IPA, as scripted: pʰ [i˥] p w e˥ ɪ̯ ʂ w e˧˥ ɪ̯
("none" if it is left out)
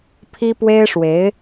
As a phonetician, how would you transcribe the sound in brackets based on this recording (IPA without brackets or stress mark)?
i˥